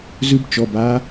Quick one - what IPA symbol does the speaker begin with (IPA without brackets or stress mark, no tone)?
z